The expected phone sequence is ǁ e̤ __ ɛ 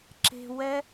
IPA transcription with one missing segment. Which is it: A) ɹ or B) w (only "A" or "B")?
B